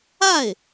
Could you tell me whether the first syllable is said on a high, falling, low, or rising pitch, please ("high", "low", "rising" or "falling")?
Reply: falling